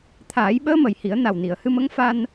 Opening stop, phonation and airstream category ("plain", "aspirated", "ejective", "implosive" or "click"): aspirated